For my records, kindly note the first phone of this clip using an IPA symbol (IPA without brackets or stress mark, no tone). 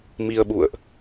m